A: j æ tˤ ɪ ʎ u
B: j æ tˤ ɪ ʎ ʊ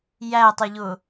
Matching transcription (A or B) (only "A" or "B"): B